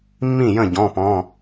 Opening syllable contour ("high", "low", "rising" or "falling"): falling